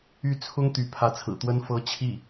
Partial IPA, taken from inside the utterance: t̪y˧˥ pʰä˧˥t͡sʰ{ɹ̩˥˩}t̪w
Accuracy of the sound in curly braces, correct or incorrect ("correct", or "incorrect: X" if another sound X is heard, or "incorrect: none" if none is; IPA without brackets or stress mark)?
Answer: incorrect: ɹ̩˨˩